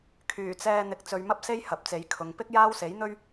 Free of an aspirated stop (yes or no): no